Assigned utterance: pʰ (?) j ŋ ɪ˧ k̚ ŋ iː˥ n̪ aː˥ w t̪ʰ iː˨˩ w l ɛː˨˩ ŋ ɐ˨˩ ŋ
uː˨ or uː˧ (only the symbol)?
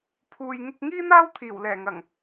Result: uː˨